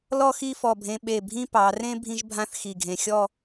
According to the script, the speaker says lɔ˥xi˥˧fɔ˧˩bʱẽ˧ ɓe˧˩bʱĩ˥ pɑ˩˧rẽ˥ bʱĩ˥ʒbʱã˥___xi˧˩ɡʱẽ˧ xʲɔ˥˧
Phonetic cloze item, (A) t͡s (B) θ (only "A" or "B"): B